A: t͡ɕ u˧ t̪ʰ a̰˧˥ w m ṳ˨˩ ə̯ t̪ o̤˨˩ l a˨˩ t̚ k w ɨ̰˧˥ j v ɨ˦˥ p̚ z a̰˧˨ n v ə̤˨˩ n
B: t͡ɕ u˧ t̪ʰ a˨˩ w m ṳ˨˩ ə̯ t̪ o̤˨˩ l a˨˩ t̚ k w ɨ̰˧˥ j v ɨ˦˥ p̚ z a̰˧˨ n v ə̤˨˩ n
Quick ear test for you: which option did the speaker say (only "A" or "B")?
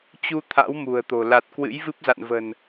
A